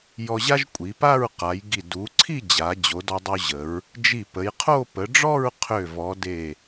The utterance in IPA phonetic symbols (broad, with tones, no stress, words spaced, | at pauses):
jɔ˧ʑa˥ʒ kʷʼi˩˧pa˥˧ɹqa˩˧jɡi˧˩ du˩˧ǀʰi˥˧ d͡ʑa˩˧ d͡ʑo˩˧dɔ˧dˤu˧ʑə˩˧ɹ | d͡ʒi˧˩pə˩˧jqʰo˥˧ pə˩˧ɖ͡ʐɔ˥˧ɹ qʰø˧˩vɔ˩˧de˧˩